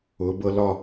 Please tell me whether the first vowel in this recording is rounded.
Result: yes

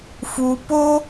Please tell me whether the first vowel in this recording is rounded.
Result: yes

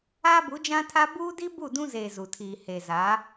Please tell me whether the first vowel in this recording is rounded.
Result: no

